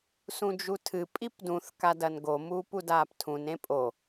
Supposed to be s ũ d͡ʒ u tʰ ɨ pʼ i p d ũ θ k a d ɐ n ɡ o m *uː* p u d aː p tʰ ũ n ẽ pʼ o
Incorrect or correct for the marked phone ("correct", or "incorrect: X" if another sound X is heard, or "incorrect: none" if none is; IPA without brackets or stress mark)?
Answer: correct